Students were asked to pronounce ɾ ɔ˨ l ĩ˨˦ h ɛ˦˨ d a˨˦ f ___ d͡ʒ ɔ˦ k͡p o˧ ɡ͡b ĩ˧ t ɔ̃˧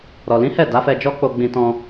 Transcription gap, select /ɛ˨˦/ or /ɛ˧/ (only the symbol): ɛ˧